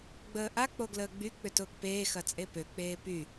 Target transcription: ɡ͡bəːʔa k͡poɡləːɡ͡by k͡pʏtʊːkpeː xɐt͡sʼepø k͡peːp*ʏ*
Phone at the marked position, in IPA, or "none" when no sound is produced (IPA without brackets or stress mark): y